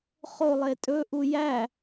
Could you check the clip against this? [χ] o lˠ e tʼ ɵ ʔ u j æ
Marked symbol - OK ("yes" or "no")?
yes